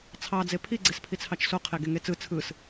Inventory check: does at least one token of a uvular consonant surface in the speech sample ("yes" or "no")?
yes